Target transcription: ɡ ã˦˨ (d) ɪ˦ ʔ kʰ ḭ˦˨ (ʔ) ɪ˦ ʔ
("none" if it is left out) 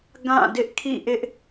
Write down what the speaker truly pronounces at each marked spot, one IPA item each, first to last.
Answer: d, ʔ

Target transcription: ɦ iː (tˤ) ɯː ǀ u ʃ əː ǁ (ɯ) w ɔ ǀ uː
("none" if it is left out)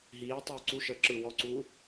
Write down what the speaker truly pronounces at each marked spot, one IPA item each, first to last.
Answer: tˤ, ɯ

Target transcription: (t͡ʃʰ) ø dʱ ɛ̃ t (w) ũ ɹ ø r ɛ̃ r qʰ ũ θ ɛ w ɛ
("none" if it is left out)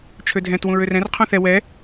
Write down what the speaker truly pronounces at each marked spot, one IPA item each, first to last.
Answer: t͡ʃʰ, w

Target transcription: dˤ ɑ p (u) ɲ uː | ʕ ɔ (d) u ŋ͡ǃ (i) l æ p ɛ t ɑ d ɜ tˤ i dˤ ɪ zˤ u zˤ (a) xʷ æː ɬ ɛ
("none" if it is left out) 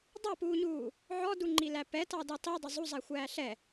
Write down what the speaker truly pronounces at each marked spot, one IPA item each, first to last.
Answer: uː, d, i, æ

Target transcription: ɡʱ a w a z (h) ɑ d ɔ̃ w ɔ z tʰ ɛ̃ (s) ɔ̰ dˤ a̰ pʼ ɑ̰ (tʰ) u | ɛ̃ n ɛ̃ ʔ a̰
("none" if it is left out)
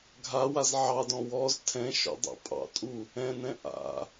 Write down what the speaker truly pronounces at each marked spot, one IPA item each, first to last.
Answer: ʕ, ʃ, tʼ

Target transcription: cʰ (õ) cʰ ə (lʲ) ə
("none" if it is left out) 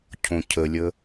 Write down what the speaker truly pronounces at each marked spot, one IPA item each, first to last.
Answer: õ, lʲ

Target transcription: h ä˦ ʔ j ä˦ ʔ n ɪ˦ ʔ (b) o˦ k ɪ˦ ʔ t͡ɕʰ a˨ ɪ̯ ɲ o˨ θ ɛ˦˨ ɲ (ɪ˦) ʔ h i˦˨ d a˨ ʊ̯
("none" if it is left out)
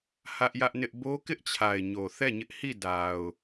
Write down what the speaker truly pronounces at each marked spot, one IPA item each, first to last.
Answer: b, ɪ˦

